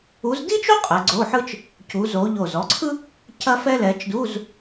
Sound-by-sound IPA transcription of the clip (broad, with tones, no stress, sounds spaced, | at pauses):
u˨˦ z d i˥ t͡ʃ o˥ qʼ ɛ˨˦ ɡ͡ǀ o˧˥˧ ħ ɯ˥ t͡ʃ | c u˨˦ z o˨˦ ʎ o˧˩ z ɔ˨˦ ǀʰ ɯ˥ | c ɐ˥ f ɛ˥ l ɛ˨˦ t͡ʃ d u˧˥˧ z